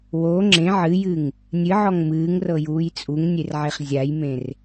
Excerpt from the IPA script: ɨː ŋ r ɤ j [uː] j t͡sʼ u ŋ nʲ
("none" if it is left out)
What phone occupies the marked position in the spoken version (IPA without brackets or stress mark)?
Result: uː